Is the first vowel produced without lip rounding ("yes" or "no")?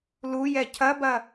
no